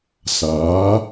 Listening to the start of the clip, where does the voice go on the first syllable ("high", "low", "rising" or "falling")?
rising